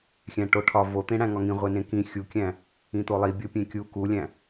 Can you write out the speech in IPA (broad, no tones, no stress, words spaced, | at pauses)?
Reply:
xʲæ̃ʈoʈʰɒ vot̪ẽɽæ̃ ŋɒŋĩ ʁʷenẽkĩ xʲukʲæ̃ | ĩt̪olˠi bʲopʲẽkʲu kulʲæ̃